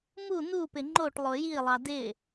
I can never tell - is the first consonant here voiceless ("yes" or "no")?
no